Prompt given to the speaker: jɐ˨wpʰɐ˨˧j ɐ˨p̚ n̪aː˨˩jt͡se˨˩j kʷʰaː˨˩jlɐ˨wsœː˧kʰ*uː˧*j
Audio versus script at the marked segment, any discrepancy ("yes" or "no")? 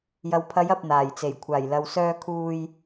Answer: no